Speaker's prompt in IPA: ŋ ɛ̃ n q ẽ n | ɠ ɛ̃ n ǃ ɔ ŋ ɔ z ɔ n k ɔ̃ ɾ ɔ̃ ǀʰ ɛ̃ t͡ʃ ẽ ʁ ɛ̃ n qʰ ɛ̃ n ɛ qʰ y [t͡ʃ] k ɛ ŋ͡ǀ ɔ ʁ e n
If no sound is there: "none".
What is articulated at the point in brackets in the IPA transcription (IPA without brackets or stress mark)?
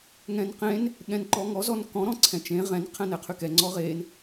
none